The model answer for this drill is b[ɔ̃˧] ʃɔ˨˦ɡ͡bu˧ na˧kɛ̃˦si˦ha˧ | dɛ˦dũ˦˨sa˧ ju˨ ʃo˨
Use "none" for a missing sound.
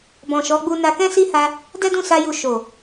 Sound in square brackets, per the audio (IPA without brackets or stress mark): ɔ̃˨